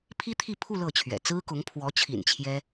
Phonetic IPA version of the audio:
pʰ i˥ t̪ʰ i˥˧ pʰ u˥˧ l ɤ˥˩ t͡ɕʰ ɥ ɛ̰˨˩ t͡s ɹ̩˥ k ʊ˧˥ ŋ pʰ w ɔ˧˥ t͡ɕʰ ḭ˨˩ n t͡ɕʰ j ɛ˥

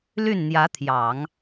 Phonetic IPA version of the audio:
l y˥˩ n n̪ j ä˧˥ t̪ʰ j ɑ˨˩˦ ŋ

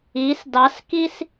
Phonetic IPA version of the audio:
i s d ɑ s k i s

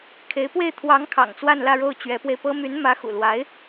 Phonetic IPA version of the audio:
kʰ e˧˥ ɪ̯ p w e˥˩ ɪ̯ t̪ʰ w ɑ˧˥ ŋ kʰ ɑ̰˨˩ ŋ t͡s w a˥˧ n l ä˥˧ ɻ o˥˩ ʊ̯ t͡ɕ ɥ ɛ˧˥ p w e˧ ɪ̯ p ɤ˥ m y˧˥ n m ä˧˥ x ṵ˨˩ l w a˧˥ ɪ̯

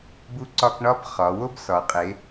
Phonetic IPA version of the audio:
b u˥ ǀ ɒ˥ k ɳ ɒ˥ b χ ɒ˩˧ w o˥ b s ɒ˩˧ qʼ e˩˧

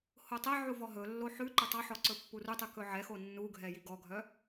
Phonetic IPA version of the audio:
h o tˤ ɛ ʕ u v ɔ ɦ ɵ lː o ħ ʉ ǃ ɵ tˤ ɑ ħ ɔ ǀ ɵ pː u r u tˤ ʉ k ɵ ʕ ɛ x o nː u ɡʱ ɛ j i ɡ ɔ ɡʱ œ

